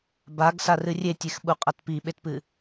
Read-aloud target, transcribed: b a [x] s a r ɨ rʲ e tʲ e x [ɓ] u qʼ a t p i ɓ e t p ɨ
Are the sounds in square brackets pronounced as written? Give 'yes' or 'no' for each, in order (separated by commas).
no, yes